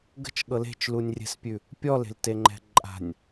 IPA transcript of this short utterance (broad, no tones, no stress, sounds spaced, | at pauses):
ɡ ə̤ t͡ʃ ɠ ɤ l e̤ t͡ʃ l u nʲ rʲ ɛ̤ s pʲ ʉ | pʲ ɔ l e̤ l t e ŋ͡ǃ ɛ̤ ǃʼ a̤ nʲ